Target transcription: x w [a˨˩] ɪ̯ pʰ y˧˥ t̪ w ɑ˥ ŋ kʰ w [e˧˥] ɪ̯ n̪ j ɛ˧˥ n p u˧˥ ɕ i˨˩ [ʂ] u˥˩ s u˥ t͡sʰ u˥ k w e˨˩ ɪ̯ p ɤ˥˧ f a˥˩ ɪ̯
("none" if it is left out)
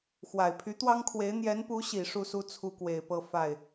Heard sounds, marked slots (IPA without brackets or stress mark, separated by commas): a˨˩, e˧˥, ʂ